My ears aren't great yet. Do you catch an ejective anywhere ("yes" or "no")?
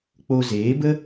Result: no